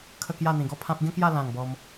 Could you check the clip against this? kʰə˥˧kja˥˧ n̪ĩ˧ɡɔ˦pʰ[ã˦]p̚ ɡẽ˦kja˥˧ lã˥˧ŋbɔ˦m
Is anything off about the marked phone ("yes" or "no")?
no